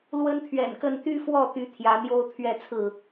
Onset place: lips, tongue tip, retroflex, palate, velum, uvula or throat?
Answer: tongue tip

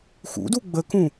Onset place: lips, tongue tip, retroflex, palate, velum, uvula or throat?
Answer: velum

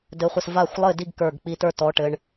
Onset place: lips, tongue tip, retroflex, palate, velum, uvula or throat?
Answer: tongue tip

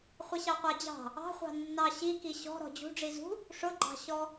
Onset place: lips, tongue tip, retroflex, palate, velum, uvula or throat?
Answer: uvula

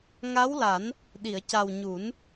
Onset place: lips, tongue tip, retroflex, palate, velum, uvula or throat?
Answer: velum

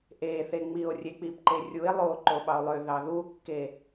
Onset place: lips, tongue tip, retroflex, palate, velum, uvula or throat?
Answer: throat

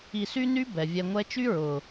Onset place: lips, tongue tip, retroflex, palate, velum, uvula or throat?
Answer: tongue tip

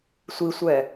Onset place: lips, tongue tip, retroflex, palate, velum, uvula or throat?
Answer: tongue tip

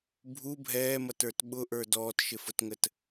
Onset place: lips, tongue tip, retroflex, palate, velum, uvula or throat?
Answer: lips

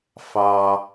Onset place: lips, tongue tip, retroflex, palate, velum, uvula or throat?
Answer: lips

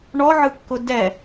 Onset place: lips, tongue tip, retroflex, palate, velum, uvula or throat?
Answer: retroflex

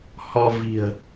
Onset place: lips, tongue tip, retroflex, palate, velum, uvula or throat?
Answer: throat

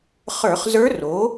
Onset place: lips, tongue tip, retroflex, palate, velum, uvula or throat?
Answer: uvula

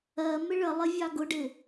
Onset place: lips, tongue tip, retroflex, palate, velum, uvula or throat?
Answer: lips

